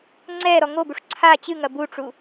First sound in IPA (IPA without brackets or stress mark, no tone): ŋ͡ǀ